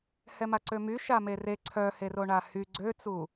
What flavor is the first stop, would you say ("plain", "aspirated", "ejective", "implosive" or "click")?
click